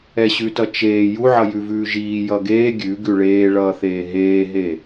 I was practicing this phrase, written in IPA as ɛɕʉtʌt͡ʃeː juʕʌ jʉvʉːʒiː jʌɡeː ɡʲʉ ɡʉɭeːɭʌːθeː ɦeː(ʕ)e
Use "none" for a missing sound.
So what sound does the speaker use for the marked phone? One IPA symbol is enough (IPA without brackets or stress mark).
ɦ